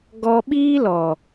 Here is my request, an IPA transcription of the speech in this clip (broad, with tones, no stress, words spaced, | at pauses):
ɡɔ˧ɓiː˦lɔ˨